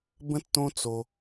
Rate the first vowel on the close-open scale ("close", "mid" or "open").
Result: mid